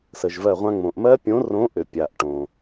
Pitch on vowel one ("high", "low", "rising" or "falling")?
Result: low